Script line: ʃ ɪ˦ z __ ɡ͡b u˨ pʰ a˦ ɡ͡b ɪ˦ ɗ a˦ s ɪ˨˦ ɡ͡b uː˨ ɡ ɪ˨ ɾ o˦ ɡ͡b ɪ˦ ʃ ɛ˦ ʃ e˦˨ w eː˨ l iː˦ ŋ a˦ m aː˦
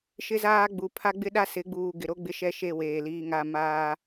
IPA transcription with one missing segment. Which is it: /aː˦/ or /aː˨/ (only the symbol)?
aː˦